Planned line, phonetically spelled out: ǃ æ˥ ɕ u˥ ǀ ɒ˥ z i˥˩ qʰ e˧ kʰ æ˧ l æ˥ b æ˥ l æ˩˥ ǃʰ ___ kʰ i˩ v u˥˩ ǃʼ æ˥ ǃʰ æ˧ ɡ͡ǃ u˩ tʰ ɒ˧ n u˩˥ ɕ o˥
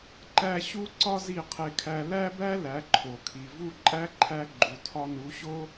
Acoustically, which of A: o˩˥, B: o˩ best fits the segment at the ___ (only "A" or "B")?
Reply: B